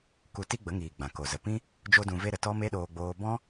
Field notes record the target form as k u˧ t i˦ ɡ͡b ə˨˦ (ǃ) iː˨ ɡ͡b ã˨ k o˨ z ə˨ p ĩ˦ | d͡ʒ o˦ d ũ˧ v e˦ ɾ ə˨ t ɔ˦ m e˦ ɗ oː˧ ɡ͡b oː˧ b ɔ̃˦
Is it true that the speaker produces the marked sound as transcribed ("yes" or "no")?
no